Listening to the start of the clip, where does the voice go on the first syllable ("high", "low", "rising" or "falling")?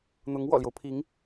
rising